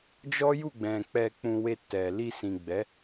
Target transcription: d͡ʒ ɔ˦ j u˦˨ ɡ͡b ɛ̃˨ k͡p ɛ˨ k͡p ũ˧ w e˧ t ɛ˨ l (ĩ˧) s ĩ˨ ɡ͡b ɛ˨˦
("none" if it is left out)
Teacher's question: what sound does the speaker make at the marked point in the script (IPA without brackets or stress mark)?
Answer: i˧